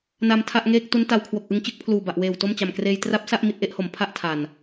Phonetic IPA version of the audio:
na˧mtʰa˥˩ʔŋeː˥˩k̚ tu˦˥nta˧wkʰwo˨˩k̚ʔɯ˧ŋ t͡ɕɯ˥˩k̚pʰluː˨˩ba˨˩ʔweː˨˩w to˥˩mt͡ɕa˨˩mkreː˧j tra˦˥p̚sa˥˩ʔ mi˦˥t̚ʔe˦˥ʔho˩˦m pʰa˥˩ʔtʰa˨˩n

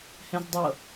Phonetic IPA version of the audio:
hɛ̃zdˤɤ

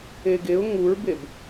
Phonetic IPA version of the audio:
eɡeʊ̯ ŋuɹbeb

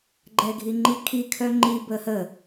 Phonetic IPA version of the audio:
ɡ͡ǃɛɡʱiŋ͡ǃikʰi kʰœŋ͡ǃi bəhə

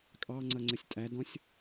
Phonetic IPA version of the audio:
kʼɑŋ͡ǀʌŋ͡ǀəsʲ tʼædɔ̃sʲ

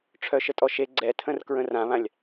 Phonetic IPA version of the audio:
ʈ͡ʂʰœʃətʼɔʃe ɡ͡ǀɛtʰə̃r kɹə̃rãβãlʲ

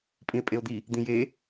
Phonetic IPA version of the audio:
pʼĩe̯pʼeo̯d̪i | d̪ĩje

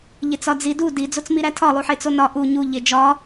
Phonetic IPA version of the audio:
ʎet͡sɒd͡zi du di d͡zot͡smiɾætʰɒ lˠuħet͡sonɒ ʔu ɲu ʎed͡ʒɒ

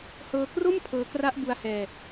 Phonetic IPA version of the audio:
hɤː˧kro˥˩m pʰɤː˦˥ kra˦˥ʔbu˧a̯hɛː˧

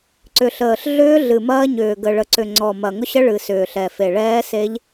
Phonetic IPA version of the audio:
ǀʏ˨˩ɬəː˨˩ɬ ɮʏː˦˥ɮɨ˨˩ mɐː˦˥ɲʏː˨˩ ɡə˨˩ɭə˨˩ǀʏ˨˩ ŋ͡ǀɔ˨˩ mɐ˨˩ŋʊ˦˥ɕə˦˥ ɭɨ˨˩ sʏː˨˩ɬɛ˨˩fe˨˩ ɭɛː˦˥se˦˥ʎ

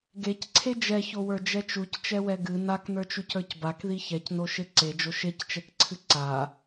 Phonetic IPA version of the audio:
ɡecǀʰe d͡ʒɛçowə˞d͡ʒɛ t͡ʃuct͡ʃɛwɛ ɡɨ naknə˞t͡ʃucə˞c bakði çɛcnoʃe ǀed͡ʒo ʃect͡ʃɛkǀʰɨ ǀa

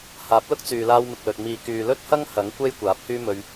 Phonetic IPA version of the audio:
haː˨˥p̚lʊ˥k̚t͡syː˨laː˧w mɪ˨k̚lɵ˨t̚ miː˨kyː˨ lɵ˥t̚hɐ˥ŋ hɐ˨˥ŋkʷe˥j kʷaː˨˥p̚hyː˥mɵ˧ɥ

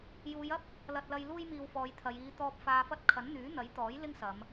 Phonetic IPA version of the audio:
juː˨˧jɐ˥p̚ | lɐ˨t̚lɐ˧j luː˥jmiː˧wfɔː˨˧jt̪ʰɐ˨˧j iː˨˧t̪ɔː˧p̚ faː˧fɐ˥t̚ kʰɐ˨˥nn̪yː˨˥n̪ɐ˨˥jt̪ɔː˨˥j lɪ˥ŋsɐ˨˧m

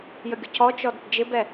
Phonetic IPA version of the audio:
jəɡʲʊcʰɔt͡ʃɔ dɪdd͡ʒɪbɛ

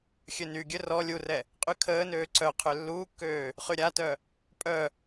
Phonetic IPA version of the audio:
xʲønyɡʲø rɔ lʲurɛ | qʼykʰəːnøː ǀœqʰø lːuːkːøː | χyɾʲatœ | pʼœ

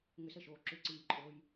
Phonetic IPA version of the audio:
ŋʏsəʃoː ǁʏǀiːǃʼoːj

